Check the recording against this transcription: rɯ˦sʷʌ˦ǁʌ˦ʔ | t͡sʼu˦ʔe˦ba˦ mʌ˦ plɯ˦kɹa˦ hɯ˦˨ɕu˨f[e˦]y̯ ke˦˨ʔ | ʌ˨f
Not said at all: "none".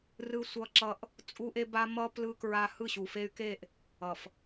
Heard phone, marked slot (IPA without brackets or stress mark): e˦